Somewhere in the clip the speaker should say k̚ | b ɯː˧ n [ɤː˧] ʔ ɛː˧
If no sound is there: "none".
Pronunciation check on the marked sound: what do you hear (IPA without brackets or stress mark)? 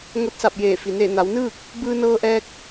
ɤː˧